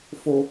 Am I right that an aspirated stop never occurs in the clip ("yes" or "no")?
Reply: yes